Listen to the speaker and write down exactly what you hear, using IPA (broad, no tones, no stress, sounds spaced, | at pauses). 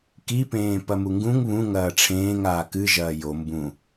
k i p ẽː p ɐ m u ŋ ɡ ũ ŋ β ũ ŋ ɐː ʈ͡ʂʰ ẽː ŋ aː k ɨ ʒ ɐː j o m b ũ